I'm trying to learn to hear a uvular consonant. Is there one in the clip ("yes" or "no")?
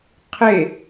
yes